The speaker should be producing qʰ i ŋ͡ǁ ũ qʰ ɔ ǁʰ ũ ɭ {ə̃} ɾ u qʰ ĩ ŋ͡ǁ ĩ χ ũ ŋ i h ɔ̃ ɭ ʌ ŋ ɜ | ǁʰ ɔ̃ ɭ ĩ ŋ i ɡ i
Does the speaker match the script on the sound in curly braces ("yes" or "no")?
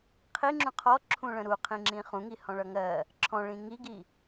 yes